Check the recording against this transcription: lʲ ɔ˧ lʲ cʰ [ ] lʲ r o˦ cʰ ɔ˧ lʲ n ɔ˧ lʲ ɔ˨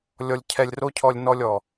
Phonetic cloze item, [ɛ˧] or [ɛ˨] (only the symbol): ɛ˧